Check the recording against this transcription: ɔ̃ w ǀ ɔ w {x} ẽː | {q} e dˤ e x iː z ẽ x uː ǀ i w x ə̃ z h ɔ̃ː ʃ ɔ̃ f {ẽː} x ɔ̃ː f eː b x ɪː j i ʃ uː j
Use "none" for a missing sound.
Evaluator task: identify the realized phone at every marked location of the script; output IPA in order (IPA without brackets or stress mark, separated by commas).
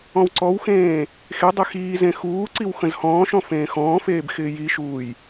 x, x, ẽː